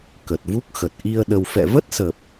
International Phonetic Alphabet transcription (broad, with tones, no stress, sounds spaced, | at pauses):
k ə˨˩ t̚ v u˦˥ k̚ x ə˨˩ t̚ ʔ i˧ ə̯ ɗ ə˧ w f ɛ̰˧˨ v ə˦˥ t̚ s ə˨˩ p̚